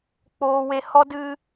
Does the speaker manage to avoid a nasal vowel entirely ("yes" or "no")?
yes